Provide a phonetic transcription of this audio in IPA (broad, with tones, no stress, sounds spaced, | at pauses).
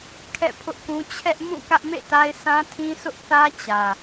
kʰ ɛ̰˦˨ pʰ ʊ˦ ʔ k ũ˦ t͡ɕʰ ɛ˦ ʔ m ũ˦˨ k ä˦ ʔ m ḛ˦˨ t a˦ ɪ̯ sʰ ã˦ tʰ ĩ˦ s ʊ˦ ʔ θ ä˦ t͡ɕ ä˨